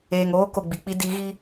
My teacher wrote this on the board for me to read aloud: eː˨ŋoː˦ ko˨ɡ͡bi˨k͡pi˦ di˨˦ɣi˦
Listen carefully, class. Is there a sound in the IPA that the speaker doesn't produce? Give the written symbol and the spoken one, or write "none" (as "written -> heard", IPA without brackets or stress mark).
none